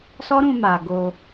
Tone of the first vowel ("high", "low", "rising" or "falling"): high